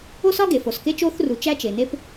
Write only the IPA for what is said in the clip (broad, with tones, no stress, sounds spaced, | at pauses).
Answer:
o˥ s ɒ˥ ɡ e˩ f o˩ s k e˥ t͡ʃ o˥ θ r u˩ t͡ʃ æ˥ t͡ʃ e˩ n e˥ p